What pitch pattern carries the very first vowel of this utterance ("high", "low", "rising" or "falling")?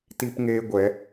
high